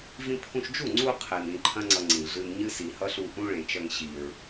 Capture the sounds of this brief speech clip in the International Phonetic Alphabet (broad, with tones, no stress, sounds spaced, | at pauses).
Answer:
v ĩ˧ pʰ ũ˧ ʃ d͡ʒ u˦˨ ŋ͡ǀ u˧ qʰ e˨ n ĩ˧ ǃʰ ɐ̃˦ ŋ͡ǀ ʌ˧ ŋ͡ǀ ĩ˨ ɮ ɨ˧ n ɲ ɨ˦ s i˨ h ʌ˦ ɬ u˧ ʔ ũ˦ ɭ ẽ˨ t͡ʃ ʌ˧ ŋ ɕ i˨ ɹ